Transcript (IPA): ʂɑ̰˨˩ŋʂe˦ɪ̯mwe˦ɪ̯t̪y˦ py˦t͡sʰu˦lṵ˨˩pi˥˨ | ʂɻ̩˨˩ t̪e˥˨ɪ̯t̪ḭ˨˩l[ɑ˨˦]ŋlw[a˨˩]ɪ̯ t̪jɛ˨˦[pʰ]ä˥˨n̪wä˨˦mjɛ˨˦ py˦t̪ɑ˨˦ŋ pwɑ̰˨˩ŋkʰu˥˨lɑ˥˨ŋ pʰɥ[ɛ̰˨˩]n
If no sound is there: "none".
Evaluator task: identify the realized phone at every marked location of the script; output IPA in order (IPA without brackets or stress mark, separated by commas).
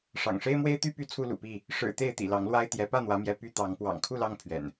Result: ɑ˨˦, a˦, p, ɛ̰˨˩